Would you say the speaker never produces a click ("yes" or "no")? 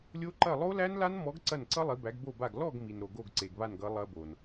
no